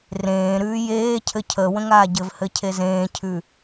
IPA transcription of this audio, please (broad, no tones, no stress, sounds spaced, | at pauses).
r ẽː ɾ ʉː j eː cʰ ɘ cʰ ə w ə̃ ŋ aː ɟ ɘ v h ɘ cʰ e z ẽː cʰ ʉ